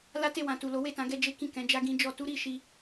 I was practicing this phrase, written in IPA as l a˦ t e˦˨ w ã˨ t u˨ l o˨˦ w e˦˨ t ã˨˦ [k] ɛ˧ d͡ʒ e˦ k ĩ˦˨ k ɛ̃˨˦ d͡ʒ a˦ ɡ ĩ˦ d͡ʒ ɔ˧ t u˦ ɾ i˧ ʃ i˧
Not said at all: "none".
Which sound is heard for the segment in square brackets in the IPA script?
ɡ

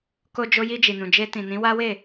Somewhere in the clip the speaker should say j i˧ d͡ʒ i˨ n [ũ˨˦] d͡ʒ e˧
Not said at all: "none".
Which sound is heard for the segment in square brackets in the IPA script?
ũ˨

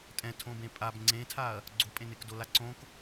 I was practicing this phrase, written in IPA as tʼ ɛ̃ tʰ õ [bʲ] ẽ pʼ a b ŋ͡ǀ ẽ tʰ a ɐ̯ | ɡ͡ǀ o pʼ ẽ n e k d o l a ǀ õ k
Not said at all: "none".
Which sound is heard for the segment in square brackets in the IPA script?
b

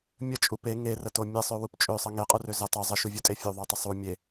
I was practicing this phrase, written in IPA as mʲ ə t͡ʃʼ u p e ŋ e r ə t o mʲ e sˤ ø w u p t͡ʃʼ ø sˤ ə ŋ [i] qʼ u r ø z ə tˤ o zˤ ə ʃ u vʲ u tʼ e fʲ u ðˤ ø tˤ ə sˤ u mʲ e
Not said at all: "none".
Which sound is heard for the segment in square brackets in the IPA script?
e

